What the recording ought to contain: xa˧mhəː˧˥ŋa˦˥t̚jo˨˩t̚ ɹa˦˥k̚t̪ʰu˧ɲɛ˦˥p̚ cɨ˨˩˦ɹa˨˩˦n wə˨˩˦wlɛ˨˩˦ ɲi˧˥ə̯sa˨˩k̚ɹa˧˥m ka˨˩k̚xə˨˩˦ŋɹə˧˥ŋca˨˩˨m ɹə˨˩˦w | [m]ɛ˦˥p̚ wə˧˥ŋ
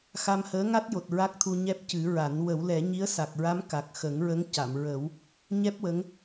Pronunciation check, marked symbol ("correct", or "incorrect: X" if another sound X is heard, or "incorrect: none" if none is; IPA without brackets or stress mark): incorrect: ɲ